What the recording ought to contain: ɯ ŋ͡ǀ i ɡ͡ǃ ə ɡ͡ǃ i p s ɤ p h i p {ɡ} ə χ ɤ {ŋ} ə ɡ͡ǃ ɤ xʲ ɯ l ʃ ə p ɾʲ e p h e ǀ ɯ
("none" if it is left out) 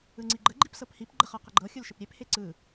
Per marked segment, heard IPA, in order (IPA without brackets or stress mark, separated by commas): ɡ͡ǃ, q